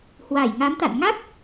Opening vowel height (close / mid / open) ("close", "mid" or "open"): open